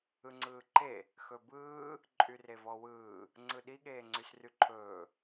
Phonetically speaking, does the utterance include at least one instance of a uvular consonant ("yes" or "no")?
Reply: no